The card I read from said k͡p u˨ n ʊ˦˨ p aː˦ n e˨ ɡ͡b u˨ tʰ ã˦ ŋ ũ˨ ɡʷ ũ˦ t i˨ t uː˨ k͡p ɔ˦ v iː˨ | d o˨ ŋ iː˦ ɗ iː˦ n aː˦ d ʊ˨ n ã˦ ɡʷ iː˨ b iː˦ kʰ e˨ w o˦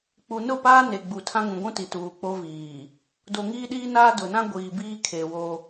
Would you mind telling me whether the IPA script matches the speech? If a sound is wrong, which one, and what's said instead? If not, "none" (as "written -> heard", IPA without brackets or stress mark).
ɔ˦ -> o˦